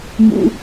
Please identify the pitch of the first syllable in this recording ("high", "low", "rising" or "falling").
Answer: high